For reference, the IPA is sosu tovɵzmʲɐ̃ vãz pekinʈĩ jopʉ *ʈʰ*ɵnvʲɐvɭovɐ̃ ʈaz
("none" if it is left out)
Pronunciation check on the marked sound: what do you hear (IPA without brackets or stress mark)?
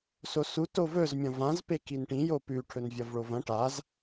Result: ʈʰ